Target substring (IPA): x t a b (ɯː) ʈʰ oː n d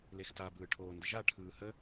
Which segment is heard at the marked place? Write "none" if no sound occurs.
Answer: ɯː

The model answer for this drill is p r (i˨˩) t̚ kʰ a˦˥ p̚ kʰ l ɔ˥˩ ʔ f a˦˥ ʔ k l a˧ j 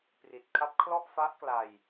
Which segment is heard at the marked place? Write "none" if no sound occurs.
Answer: i˨˩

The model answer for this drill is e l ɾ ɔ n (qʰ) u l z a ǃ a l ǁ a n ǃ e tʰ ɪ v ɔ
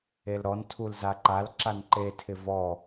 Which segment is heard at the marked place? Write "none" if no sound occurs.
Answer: tʰ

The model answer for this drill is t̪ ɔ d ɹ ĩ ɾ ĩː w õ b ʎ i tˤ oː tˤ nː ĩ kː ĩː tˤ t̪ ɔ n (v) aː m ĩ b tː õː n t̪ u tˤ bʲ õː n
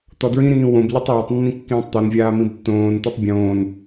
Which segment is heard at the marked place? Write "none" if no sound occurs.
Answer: vʲ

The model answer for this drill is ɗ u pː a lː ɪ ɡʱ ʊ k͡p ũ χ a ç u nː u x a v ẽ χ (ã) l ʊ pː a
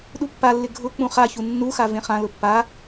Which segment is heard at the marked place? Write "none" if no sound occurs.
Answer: ã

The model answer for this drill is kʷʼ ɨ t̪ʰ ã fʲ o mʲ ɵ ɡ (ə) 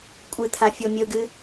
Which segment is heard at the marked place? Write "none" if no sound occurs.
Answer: ɨ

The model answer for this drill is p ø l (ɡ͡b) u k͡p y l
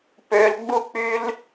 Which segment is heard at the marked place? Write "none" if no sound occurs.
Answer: ɡ͡b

